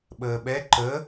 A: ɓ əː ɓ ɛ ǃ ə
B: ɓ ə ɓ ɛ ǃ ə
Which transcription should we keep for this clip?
A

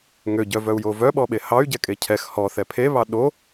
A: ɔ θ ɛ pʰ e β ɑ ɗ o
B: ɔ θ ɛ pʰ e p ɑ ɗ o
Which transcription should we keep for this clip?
A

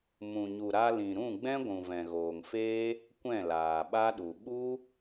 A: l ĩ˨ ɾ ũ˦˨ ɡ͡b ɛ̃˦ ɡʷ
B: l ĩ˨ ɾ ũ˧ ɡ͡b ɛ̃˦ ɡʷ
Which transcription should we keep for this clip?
A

